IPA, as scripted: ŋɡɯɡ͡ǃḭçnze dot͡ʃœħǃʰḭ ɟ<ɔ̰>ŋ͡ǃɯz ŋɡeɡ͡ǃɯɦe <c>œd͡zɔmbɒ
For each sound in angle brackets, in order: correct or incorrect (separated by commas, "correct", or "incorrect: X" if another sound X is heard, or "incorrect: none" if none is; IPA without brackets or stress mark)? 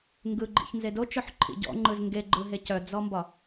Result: correct, correct